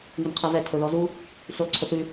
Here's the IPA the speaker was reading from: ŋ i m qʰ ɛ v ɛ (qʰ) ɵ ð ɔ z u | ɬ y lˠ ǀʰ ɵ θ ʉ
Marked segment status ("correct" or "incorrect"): incorrect